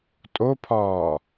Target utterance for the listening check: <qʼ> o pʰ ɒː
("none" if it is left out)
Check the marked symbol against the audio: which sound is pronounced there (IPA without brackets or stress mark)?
tʼ